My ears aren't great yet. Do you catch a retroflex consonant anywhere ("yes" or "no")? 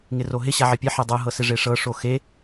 yes